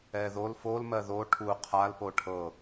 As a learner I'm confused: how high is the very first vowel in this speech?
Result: mid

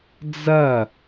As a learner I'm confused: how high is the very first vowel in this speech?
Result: low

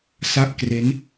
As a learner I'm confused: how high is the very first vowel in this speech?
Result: low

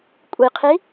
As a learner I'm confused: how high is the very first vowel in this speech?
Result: high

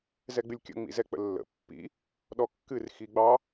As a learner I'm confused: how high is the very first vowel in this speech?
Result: mid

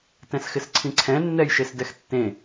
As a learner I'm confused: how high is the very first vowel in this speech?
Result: mid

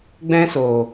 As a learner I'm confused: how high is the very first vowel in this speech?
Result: mid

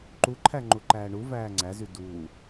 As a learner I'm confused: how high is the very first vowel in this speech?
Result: high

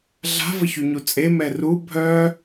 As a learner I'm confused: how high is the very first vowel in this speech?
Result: low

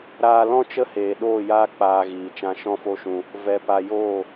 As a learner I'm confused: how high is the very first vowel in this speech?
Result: low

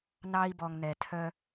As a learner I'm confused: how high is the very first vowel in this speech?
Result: low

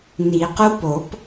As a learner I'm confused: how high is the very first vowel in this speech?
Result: high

